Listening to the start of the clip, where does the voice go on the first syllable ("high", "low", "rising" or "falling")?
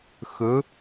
rising